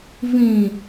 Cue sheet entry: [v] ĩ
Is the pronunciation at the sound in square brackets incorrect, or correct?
correct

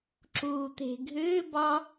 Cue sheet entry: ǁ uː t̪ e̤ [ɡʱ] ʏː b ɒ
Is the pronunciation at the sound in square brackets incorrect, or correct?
correct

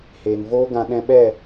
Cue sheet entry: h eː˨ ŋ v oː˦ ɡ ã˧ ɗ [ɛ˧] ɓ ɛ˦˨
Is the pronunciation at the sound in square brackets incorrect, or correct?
incorrect: ɛ̃˧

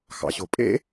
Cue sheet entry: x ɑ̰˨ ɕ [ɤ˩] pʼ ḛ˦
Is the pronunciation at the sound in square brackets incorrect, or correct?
incorrect: o˩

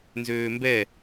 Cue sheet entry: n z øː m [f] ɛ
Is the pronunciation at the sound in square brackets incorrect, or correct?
incorrect: b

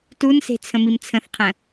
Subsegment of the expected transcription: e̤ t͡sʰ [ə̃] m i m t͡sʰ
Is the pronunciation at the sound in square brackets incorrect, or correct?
correct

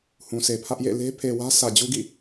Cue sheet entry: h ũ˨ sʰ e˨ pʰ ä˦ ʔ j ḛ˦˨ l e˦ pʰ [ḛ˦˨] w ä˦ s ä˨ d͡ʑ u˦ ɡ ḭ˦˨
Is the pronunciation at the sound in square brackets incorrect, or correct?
incorrect: e˨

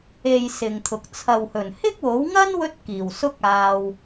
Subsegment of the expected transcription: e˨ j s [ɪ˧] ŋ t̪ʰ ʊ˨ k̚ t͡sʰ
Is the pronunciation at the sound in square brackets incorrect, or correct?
incorrect: ɪ˨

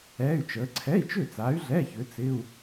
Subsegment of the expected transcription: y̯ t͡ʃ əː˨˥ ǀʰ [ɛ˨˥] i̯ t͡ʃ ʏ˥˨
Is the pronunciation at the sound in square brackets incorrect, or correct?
incorrect: ɛ˧˥˧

